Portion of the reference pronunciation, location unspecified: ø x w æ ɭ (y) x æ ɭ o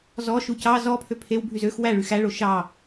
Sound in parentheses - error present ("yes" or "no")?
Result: no